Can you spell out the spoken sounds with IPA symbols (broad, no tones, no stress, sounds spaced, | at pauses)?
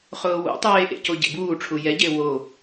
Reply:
χ ʊː w ṵ tˤ eː ʔ ḛ c o ɟ ḛ b uː ʈ͡ʂʰ u j ɛ ɟ e w o